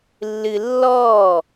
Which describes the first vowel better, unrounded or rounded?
unrounded